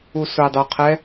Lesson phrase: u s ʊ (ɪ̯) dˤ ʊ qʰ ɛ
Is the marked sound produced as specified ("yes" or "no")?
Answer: yes